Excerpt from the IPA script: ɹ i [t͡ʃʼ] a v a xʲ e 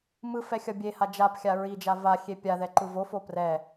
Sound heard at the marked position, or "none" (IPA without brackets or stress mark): d͡ʒ